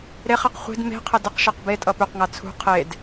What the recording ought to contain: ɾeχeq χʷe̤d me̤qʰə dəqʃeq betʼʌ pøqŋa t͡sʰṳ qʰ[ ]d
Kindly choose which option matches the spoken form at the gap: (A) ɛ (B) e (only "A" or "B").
B